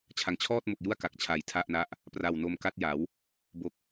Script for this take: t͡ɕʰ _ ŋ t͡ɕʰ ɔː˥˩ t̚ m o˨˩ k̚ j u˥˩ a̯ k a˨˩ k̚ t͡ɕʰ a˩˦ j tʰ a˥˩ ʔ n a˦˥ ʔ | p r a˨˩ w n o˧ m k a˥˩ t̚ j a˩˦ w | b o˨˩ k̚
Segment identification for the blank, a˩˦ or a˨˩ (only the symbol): a˩˦